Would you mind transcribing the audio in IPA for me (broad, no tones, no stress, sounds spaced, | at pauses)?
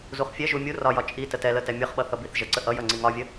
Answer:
z u χ fʲ ɛ ʒ u mʲ u r ɒ j ɒ t͡ʃʼ i t ə t ɛ l ə t ɛ mʲ ʌ χ ɓ ʌ θ ʌ b i θ ʒ ə ǀ ə ʔ ʌ j ʌ ŋ͡ǀ i ŋ ɒ vʲ ə